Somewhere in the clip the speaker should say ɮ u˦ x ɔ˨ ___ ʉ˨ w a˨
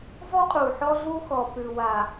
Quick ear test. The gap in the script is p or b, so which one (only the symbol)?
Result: p